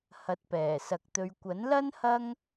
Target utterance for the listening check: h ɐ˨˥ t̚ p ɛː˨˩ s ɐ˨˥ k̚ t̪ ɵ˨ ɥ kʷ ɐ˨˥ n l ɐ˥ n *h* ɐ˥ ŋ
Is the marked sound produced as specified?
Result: yes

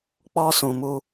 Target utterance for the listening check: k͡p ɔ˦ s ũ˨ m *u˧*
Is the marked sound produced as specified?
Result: yes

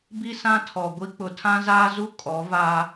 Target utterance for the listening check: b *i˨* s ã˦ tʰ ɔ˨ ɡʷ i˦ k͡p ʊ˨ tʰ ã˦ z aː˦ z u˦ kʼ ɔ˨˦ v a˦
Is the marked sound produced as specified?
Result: no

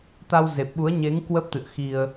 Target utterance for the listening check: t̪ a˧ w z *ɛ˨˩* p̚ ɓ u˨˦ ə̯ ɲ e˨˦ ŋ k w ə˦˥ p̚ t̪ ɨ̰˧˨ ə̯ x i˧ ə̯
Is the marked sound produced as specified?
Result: no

